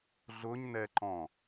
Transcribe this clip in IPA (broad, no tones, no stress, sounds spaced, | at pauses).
ɮ ʊ ɲ n ɛ ǃ ɔ̃